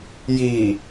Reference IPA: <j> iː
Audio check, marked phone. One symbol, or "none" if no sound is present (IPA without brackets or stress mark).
j